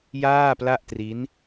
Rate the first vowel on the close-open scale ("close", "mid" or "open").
open